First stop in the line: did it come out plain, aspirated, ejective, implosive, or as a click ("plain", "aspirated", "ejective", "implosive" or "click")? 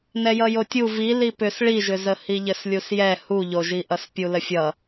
plain